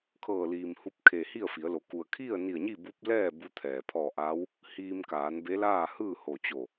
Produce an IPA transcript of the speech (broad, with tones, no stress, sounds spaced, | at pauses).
kʰ ɤː˧˩ l iː˩ m h u˧ p̚ kʰ e˩ h i˥˨ ə̯ f i˩˧ ə̯ l o˩˧ k u˩ ə̯ kʰ i˥˨ ə̯ n i˧˩ ə̯ ɲ i˥˨ b u˧˥ p̚ l ɛː˥˨ b u˧˥ t̪ʰ ɛː˩ pʰ ɔː˧˩ ʔ aː˧˥ w | h iː˧ m k aː˩˧ n b e˧˥ l aː˥˨ h ɯː˥˨ h o˧˩ t͡ɕ o˧˩